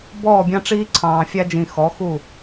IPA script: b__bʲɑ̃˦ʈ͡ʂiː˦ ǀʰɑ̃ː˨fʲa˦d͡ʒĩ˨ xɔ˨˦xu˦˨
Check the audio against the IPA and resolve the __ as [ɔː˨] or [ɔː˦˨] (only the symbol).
ɔː˦˨